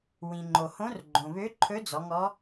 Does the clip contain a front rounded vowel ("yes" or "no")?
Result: yes